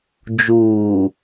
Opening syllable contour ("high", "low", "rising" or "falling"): low